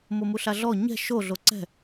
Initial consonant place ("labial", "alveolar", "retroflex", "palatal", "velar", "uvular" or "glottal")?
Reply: labial